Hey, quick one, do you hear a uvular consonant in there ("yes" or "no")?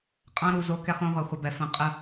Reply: yes